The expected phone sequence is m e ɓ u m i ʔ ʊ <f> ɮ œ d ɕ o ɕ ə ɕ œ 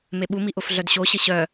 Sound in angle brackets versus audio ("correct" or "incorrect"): correct